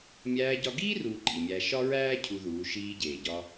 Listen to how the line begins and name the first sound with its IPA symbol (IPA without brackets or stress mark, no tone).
mʲ